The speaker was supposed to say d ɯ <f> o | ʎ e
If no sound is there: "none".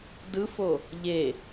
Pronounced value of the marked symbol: f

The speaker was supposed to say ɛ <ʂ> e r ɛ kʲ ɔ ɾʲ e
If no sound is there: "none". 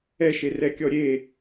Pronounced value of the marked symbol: ʃ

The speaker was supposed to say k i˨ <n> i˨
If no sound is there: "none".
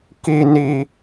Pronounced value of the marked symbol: n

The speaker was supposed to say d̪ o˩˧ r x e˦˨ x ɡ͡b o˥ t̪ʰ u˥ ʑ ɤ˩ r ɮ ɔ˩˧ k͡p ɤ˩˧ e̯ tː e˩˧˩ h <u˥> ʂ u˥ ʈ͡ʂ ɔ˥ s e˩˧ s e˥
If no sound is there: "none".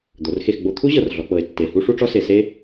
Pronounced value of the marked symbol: u˥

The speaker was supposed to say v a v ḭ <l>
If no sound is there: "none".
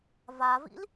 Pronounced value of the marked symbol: l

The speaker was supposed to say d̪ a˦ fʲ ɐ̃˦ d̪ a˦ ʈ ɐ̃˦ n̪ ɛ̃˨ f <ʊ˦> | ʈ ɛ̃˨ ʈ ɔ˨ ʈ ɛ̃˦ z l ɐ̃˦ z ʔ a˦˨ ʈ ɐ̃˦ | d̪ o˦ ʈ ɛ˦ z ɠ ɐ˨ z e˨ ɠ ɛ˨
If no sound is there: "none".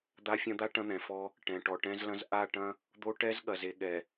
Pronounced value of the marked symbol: ɔ˦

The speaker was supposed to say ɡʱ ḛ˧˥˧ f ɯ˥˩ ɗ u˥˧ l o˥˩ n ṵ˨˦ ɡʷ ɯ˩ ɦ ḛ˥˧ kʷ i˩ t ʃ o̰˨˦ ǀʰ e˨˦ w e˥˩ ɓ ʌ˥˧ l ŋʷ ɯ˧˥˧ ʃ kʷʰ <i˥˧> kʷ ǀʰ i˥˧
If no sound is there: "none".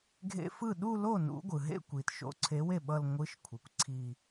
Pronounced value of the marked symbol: i˩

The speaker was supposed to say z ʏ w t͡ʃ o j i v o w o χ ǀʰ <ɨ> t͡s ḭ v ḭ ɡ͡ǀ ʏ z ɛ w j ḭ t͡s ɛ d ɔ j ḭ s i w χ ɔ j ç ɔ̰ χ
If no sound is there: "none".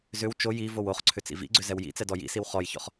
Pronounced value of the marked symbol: ʏ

